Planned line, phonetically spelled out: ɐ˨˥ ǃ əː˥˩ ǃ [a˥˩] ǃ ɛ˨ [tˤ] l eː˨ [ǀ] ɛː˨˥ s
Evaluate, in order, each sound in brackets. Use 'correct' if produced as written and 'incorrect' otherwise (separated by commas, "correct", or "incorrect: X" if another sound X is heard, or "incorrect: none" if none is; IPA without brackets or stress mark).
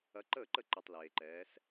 incorrect: ə˥˩, correct, incorrect: ǃ